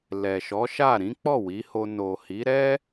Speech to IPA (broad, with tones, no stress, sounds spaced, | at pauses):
l ɛ˨ ʃ ɔ˨˦ ʃ a˦˨ ɾ ĩ˨˦ k͡p ɔ˦˨ w i˨˦ h o˧ n o˨ h i˨˦ ɾ ɛ˦